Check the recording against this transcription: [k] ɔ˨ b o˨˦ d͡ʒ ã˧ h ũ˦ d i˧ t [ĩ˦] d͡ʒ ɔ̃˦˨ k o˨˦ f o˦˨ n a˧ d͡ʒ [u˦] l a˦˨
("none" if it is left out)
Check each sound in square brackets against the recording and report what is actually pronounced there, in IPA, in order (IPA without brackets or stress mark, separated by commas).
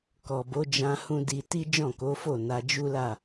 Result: k, i˦, u˦